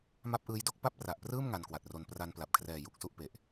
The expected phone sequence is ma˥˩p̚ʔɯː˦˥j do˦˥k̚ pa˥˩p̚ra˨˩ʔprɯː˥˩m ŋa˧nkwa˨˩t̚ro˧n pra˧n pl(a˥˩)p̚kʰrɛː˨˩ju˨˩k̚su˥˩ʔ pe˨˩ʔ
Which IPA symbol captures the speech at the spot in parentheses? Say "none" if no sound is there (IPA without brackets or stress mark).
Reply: a˨˩